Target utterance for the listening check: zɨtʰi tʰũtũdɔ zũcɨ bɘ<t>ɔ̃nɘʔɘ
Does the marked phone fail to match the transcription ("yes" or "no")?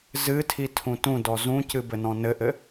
yes